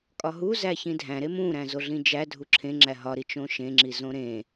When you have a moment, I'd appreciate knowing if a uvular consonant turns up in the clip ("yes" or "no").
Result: no